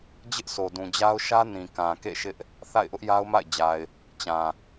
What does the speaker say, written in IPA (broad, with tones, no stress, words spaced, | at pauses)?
d͡ʑɪ˦ʔsʰo˨dũ˨d͡ʑa˦ʊ̯ ʃä˦nĩ˨kã˨ kḛ˦˨ʃɪ˦ʔ | θa̰˦˨ɪ̯ʔʊ˦ʔja˦ʊ̯ma̰˦˨ɪ̯ d͡ʑa˨ɪ̯ | t͡ɕã˨